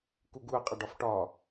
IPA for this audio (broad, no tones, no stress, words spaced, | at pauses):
kuɡuɐ̯ qʼʌɖɒfʈɒ